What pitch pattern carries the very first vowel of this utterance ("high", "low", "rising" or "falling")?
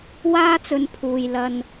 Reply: high